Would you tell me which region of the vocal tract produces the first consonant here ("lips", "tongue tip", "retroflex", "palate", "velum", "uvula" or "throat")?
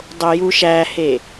tongue tip